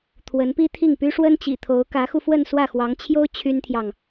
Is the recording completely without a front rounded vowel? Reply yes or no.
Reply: no